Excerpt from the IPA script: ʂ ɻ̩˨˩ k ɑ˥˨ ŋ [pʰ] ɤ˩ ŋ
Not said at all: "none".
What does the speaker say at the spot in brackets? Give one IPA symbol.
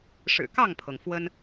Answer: pʰ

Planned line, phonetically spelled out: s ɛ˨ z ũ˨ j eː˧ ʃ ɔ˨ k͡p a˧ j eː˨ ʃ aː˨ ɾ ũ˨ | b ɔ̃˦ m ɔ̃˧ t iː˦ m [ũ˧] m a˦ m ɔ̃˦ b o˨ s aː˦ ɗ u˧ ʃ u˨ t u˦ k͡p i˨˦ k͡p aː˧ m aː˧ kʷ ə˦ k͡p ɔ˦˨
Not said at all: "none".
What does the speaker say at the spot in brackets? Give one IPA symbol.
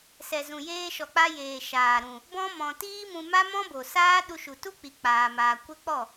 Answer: ũ˧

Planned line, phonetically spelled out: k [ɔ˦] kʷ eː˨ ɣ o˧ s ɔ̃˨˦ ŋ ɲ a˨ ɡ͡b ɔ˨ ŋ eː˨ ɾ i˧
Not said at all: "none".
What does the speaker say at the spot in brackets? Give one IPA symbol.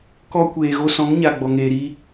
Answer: ɔ˦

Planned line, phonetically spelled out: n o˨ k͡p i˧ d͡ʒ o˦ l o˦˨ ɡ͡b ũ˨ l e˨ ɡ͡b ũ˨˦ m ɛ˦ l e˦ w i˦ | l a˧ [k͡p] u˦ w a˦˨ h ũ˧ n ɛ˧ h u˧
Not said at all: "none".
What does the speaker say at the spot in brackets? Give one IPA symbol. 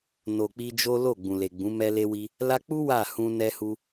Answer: k͡p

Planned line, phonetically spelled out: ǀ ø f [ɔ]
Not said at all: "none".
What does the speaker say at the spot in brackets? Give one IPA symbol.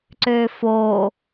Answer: o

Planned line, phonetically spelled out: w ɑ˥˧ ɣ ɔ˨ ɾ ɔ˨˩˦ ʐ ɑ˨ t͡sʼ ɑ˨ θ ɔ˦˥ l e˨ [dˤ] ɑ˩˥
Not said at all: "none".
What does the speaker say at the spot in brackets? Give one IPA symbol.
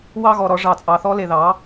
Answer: ð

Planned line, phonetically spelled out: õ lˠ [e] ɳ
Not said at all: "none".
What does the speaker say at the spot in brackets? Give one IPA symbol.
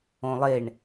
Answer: e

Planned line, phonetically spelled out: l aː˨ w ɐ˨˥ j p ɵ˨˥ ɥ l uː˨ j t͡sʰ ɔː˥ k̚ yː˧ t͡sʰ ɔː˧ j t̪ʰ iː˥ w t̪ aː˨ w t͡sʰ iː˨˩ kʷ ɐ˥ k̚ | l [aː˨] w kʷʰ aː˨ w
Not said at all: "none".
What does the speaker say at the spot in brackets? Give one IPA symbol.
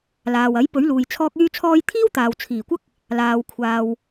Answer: aː˨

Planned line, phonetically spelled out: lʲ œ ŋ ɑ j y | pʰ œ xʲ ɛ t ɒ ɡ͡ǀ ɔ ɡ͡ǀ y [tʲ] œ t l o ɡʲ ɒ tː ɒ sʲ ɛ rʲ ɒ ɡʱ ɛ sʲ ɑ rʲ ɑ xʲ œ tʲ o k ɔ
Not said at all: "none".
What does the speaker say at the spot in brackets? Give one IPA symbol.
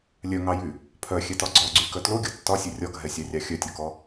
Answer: k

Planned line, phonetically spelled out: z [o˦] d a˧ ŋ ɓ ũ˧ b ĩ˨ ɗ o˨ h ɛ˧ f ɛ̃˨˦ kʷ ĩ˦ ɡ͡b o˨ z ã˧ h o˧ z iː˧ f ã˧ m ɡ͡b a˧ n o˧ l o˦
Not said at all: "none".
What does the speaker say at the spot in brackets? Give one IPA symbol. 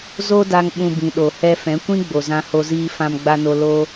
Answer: o˦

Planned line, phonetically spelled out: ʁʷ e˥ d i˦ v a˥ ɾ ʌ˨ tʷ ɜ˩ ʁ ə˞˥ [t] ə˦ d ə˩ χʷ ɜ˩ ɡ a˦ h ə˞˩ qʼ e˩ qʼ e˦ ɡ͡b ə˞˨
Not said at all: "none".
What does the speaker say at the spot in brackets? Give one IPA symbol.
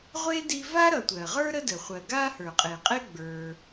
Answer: ɾ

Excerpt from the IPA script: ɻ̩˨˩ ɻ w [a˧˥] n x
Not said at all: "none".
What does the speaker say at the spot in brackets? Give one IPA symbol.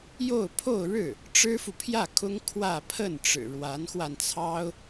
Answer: a˧˥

